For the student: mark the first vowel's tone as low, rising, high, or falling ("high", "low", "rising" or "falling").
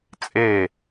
falling